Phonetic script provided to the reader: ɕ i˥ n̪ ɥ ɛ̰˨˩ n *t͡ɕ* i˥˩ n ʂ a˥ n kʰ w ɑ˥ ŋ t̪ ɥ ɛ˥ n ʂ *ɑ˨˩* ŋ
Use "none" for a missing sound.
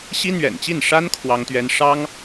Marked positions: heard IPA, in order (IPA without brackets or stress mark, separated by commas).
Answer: t͡ɕ, ɑ˥